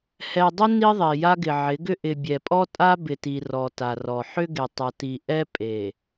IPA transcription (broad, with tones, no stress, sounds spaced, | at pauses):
h ɛ˨ dˤ ɪ˦ n i˦ ðˤ e˨ j a˦ ɡ ɪ˨ ʕ ɪ˨˦ ɡ ʏ˦ ʔ ɪ˨ bʲ ɛ˨ pʼ ɔ˦ tʼ a˦ b ɪ˨ t i˨ r ɔ˨ t a˨ r ɔ˨ ħ ʏ˦ ɡ e˨ tˤ a˨ t i˨ ʔ ɛ˦ pʼ e˨